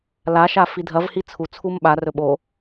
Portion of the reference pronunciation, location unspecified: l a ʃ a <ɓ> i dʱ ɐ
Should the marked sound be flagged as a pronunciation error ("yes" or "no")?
yes